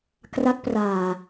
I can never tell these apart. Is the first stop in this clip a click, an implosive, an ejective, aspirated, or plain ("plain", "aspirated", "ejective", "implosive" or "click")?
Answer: plain